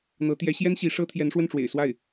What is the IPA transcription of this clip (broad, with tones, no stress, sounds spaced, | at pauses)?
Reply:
n̪ ɤ˧˥ t̪ j ɛ˧˥ ɕ j ɛ˥ n ɕ i˧˥ ʂ ɤ˥ t̪ʰ j ɛ˧˥ n ʂ w ə˥˩ n ʈ͡ʂ w ḛ˨˩ ɪ̯ s w a˥˩ ɪ̯